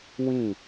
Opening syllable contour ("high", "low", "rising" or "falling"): falling